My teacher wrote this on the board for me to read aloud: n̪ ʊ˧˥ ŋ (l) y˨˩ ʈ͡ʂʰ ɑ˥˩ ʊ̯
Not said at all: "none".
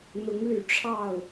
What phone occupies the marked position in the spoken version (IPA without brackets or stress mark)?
l